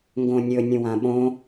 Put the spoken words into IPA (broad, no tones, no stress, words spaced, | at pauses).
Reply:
ŋɡõnʲɵ nʲũwãɓõ